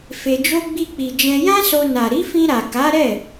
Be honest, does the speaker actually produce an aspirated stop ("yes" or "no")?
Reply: no